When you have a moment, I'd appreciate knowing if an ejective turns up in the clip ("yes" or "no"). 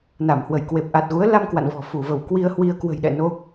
no